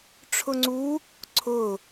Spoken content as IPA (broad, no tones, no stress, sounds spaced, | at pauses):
ʈ͡ʂʰ ʊ ŋ͡ǀ u | ǀʰ ʊ